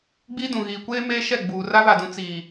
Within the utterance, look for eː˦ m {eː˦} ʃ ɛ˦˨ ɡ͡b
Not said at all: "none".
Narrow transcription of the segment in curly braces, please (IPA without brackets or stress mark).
eː˦